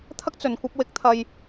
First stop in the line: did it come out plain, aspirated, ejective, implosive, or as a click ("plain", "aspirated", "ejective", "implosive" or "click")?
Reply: aspirated